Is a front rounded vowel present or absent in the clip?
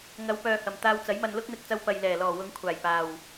present